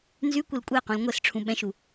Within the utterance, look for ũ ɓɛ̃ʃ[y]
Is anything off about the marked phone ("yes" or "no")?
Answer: yes